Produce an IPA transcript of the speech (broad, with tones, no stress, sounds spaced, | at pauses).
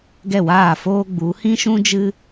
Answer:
ɡ ɛ˦˨ w aː˦˨ f oː˦ ɡ͡b u˨˦ h ĩ˦ ʃ ũ˦ d͡ʒ ɨ˦